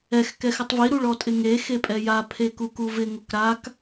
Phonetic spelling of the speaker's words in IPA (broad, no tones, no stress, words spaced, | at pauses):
ɛx kɛxɪtˤvi ɾuɭɔtʼɪŋe xepʼɛja pʰekukuvɪ ŋokɾak